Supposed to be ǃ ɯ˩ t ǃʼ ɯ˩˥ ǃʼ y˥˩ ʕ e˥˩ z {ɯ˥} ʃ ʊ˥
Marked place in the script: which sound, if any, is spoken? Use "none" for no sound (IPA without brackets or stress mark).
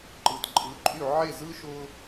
ɯ˥